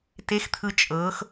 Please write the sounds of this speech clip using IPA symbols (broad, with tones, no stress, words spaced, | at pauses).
te˧˥xt̪ʰɯ˧ t͡ʃʼɤ˧˥x